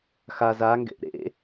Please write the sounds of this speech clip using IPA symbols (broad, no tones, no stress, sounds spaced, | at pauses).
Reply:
x a z a ŋ ɡ ḛ ʔ ɾ ḛ